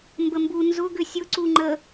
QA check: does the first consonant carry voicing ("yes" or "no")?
yes